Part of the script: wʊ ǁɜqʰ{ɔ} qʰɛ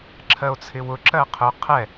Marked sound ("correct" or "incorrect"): incorrect